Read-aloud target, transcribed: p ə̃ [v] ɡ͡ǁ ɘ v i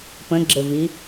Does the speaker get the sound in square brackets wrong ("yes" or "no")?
yes